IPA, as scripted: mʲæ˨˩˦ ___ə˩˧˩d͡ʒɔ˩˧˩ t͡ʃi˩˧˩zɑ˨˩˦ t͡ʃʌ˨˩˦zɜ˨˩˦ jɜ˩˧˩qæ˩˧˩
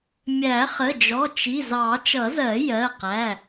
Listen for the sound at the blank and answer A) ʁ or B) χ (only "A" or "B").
B